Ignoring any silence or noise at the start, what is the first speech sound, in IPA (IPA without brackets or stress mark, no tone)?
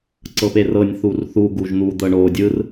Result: ǀ